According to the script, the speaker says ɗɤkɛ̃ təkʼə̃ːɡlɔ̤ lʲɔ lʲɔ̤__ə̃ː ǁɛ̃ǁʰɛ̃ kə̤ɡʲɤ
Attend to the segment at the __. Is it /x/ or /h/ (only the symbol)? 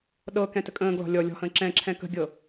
h